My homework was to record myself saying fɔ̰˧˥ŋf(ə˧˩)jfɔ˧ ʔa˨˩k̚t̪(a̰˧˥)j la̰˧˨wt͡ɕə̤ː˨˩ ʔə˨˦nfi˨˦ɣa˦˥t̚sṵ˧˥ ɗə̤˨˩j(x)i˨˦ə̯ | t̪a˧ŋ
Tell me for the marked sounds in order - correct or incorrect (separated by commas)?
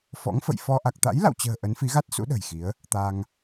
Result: incorrect, correct, correct